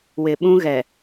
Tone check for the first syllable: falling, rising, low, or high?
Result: low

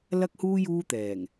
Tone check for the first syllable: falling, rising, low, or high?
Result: high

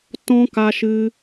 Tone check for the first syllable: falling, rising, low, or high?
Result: high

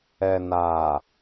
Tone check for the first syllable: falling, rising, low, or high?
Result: low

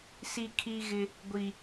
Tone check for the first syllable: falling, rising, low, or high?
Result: high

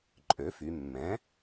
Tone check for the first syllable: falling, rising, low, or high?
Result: rising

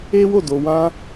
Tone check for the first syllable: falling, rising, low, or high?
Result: high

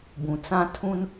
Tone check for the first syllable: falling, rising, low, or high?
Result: low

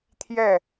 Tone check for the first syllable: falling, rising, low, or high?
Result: falling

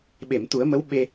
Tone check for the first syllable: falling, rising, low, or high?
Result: low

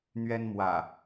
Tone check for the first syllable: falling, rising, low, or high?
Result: high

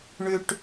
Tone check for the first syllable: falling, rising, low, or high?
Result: low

